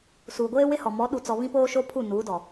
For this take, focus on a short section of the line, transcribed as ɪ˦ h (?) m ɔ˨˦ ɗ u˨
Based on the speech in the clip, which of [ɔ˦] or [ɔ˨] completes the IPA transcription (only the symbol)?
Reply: ɔ˨